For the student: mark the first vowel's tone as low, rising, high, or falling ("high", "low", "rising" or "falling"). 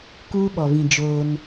high